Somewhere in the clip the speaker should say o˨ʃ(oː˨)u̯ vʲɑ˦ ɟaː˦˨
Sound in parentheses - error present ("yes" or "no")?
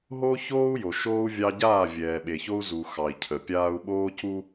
yes